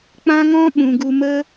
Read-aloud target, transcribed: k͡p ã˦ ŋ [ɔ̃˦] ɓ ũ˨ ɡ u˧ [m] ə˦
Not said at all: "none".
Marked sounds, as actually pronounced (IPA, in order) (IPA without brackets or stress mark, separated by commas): ɔ̃˦, m